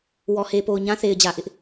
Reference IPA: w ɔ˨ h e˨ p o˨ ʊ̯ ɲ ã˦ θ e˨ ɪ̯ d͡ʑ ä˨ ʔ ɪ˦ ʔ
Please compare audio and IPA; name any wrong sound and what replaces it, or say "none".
none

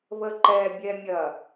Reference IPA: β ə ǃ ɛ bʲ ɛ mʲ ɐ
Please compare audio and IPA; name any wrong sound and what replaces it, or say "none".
none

